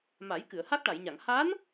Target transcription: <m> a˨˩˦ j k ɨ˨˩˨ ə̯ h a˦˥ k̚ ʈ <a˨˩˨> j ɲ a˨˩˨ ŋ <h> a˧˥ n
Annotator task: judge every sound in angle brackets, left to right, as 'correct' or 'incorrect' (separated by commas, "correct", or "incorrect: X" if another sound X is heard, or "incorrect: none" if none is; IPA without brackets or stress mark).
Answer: correct, correct, correct